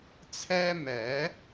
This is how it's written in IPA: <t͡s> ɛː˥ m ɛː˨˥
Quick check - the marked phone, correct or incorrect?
incorrect: t͡sʰ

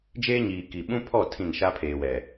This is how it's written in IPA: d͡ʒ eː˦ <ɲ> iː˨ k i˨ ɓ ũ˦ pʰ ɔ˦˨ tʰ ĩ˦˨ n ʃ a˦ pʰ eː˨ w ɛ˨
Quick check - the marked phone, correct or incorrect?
correct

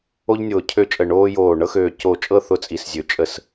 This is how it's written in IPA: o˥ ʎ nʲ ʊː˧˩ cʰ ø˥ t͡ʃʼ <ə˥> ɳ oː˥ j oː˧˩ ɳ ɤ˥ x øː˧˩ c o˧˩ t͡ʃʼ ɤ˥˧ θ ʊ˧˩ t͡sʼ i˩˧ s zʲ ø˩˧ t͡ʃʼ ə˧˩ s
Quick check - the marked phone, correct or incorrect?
incorrect: ə˧˩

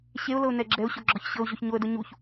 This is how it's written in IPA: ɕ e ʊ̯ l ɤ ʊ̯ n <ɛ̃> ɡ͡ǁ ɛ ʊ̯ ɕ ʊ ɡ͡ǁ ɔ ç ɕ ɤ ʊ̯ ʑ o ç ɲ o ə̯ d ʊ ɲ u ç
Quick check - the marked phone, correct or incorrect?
incorrect: ɛ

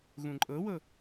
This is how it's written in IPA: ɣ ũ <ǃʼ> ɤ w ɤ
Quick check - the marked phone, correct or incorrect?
correct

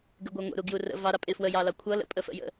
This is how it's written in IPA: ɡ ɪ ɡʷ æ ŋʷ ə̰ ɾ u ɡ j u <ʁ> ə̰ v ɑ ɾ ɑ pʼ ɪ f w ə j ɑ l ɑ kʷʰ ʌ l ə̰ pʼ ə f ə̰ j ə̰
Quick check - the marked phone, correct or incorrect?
incorrect: r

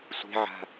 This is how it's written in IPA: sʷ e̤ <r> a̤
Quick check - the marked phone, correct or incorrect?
incorrect: ʕ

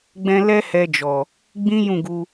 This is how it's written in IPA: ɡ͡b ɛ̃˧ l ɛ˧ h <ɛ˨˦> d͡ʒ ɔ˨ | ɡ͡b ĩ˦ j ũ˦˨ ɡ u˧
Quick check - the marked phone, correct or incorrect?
incorrect: ɛ˧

